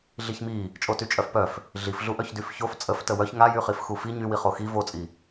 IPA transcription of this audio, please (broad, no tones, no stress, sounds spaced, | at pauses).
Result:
ɮ i ç m i | t͡ʃʼ o t y t͡ʃʼ œ f p œ f | ɮ i f ɮ u ʔ œ ç d y f ç o f t͡sʼ ə f t ə w œ ç ŋ a j y χ i f x u f i ɲ y w i χ o x i v o t͡sʼ i